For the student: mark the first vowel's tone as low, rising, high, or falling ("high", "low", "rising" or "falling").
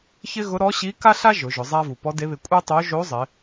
high